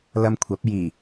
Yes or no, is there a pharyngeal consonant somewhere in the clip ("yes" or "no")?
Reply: no